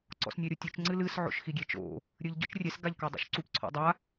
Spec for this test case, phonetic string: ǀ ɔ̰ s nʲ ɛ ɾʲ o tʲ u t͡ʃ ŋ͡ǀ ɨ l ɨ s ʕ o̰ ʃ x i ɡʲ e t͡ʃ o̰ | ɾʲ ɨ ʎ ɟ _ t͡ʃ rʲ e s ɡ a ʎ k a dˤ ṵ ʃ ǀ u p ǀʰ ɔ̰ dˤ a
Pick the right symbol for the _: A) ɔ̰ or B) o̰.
A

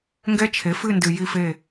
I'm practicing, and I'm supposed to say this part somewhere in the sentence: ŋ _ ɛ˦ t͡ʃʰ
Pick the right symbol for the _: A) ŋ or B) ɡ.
B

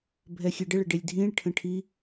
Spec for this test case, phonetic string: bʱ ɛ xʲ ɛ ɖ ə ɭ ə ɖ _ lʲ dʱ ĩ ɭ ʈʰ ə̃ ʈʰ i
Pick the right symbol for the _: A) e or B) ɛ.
A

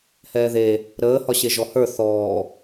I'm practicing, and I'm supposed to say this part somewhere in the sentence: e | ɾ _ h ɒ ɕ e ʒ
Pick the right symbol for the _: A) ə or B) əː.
B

